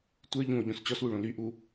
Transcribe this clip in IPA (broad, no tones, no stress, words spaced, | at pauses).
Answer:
tʷə˞ ʎũo̯ ʎõst͡ɕɔswu ɭõlyʔu